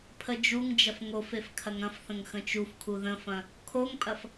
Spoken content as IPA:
pʰ ə d͡ʒ u ŋ d͡ʒ ɐ f ŋ o f e f kʰ ɐ ŋ ɐ̃ f θ ə̃ ŋ x ə̃ t͡ʃ u f kʰ u ð ə̃ f ɐ̃ | kʰ o ŋ pʼ ɐ f

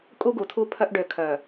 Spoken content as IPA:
kʼ u˦ ɡ u˨ tʰ u˦ pʰ œ˦ ʔ ɖ ø˨ kʰ œ˨

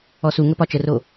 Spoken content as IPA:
ɔ s u ŋ ə p ɒ t͡ʃ ə r o

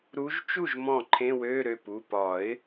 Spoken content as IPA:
ɾ u˨˦ ʒ t͡ʃ u˥˩ ʒ m ɔ̃˧˩ ǃʰ ẽ˧˥˧ w ø˧˥˧ ɾ ø˩˧˩ p u˩˧˩ p ɒ˨˩˦ ɪ̯

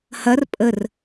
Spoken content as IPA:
h ɐ r pʼ ə r

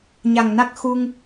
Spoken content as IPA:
ɲ a˨˩ ŋ n a˦˥ k̚ x u˧ ŋ

